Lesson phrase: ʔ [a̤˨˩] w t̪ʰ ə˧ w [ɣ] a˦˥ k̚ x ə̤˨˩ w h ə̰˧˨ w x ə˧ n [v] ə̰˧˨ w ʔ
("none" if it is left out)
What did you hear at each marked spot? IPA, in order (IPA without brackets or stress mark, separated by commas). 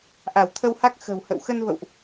a˧˩, h, v